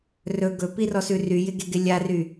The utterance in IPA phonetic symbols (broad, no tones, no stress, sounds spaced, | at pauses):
r ɵ ɡ ɵ p i r ɔ s ʉ r y j ɪ ɡ e ɡ ɪ lʲ a r y